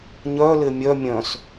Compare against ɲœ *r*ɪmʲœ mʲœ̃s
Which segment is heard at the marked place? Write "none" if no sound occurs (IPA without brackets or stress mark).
l